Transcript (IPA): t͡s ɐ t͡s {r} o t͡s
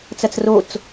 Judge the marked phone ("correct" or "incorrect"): correct